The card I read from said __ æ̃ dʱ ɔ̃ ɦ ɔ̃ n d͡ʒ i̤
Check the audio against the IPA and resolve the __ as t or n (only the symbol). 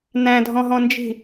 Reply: n